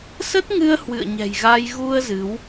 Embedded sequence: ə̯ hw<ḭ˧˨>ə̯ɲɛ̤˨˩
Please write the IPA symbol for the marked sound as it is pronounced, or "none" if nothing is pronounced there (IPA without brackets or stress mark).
ɨ̰˧˨